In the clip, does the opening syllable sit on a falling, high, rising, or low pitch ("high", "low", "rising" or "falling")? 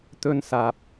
high